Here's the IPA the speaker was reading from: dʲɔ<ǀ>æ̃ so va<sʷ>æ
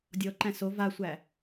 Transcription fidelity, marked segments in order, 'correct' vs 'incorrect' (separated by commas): incorrect, correct